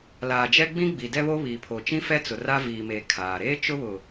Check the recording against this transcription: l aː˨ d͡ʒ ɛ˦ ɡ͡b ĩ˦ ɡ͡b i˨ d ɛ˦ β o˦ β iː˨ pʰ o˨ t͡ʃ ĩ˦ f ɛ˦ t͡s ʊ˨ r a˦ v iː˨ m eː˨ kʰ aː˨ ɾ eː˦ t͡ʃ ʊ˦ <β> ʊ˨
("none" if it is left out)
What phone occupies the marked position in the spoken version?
β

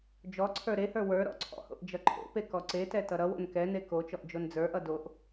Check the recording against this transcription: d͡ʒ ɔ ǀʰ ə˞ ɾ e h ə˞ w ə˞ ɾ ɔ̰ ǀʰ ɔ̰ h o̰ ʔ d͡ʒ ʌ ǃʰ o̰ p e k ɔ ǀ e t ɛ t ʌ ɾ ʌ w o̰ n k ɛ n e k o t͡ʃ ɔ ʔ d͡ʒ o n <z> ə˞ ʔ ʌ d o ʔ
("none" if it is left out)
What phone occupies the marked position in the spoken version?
d͡z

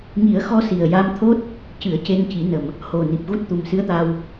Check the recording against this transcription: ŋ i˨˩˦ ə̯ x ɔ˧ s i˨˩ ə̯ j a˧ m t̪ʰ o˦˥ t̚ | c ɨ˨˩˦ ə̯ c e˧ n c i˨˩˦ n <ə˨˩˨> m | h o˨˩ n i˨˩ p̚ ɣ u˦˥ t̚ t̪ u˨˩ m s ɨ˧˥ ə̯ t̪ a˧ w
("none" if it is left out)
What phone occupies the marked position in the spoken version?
ə˨˩˨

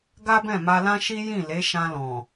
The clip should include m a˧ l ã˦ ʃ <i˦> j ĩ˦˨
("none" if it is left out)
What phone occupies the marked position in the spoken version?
i˦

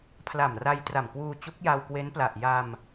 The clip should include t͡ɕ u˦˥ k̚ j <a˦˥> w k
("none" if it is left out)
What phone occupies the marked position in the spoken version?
a˧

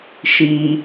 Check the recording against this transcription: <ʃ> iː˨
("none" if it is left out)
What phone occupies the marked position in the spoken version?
ʃ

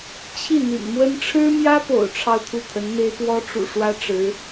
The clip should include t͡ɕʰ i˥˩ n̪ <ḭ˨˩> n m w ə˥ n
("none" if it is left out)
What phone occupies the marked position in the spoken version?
ḭ˨˩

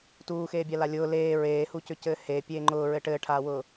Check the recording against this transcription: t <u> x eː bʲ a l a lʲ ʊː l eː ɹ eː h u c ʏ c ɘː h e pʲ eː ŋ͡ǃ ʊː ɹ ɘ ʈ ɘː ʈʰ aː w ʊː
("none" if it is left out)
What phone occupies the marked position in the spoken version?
uː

